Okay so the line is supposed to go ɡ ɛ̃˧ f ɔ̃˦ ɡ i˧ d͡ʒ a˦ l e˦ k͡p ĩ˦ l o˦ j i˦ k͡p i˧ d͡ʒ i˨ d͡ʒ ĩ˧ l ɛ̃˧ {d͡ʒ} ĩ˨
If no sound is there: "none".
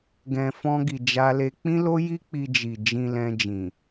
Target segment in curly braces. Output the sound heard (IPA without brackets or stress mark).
d͡ʒ